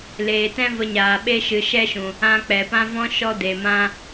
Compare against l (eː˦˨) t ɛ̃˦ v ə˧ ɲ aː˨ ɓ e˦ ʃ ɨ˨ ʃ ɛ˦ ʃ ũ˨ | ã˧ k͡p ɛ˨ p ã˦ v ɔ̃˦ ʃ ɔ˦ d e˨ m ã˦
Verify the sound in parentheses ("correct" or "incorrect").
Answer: incorrect